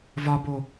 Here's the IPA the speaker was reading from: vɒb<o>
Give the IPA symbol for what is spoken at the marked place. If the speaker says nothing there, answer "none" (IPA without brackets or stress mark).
o